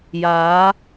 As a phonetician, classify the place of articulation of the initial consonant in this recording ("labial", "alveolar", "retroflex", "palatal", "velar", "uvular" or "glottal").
palatal